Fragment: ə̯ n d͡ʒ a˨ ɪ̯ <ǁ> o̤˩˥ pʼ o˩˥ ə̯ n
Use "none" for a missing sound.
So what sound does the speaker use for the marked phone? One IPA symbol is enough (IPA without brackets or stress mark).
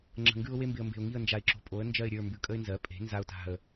ǁ